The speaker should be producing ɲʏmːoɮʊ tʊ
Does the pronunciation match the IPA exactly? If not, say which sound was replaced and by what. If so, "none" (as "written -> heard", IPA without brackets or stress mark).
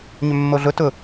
none